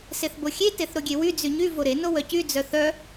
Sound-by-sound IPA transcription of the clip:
s e θ b o xʲ e t e θ ɾ o ɡʲ e w y d͡z y ɲ y v o ɾ e n o w œ c y d͡z œ θ œ

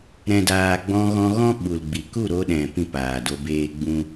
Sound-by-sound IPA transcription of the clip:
ɾ ɛ̃˨ d aː˨ ɡ͡b ɔ̃˧ ɣ ɔ̃˧ ɣ ɔ̃˦ ɓ u˨ l ɡ͡b i˨ k u˦˨ ɾ o˧ ɗ ɛ̃˨ p ĩ˦ p aː˨ d o˧ b eː˦ ɡ͡b ũ˦

